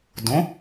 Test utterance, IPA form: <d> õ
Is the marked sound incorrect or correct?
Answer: correct